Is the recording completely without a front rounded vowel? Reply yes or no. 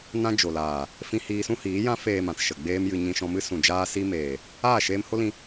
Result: yes